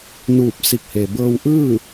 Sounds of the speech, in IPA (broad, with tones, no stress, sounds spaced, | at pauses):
n uː˧˩ p̚ s i˧˩ k̚ h e˩ b ɤː˧ w ʔ ɯː˥˨